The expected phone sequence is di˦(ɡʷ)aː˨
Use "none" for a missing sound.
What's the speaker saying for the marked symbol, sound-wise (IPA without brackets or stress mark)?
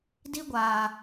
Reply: ɡʷ